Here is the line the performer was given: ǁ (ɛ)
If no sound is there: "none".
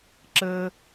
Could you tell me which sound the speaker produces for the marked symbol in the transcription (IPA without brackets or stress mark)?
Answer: ə